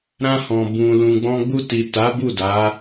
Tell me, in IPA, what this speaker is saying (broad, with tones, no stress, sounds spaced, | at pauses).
ɾ ã˧ h ɔ̃˨ b ũ˨ l ũ˨ ɡ͡b ɔ̃˧ ɡ͡b u˧ t i˨ t a˨˦ b u˦˨ d a˨˦